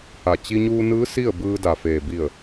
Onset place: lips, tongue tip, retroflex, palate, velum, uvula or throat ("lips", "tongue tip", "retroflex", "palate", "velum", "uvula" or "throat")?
throat